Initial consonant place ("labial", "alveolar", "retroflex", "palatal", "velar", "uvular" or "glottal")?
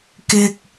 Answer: velar